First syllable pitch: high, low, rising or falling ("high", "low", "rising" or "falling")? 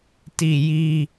falling